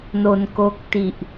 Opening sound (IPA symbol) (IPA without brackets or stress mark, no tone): n